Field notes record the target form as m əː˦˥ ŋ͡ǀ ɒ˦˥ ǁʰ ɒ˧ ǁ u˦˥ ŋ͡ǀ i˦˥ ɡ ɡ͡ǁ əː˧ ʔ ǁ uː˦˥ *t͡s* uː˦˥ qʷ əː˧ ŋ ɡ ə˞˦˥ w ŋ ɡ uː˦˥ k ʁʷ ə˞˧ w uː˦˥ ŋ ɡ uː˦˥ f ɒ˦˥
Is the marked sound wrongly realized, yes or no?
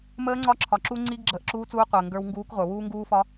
no